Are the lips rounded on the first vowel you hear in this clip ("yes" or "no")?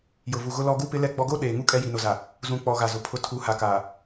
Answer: yes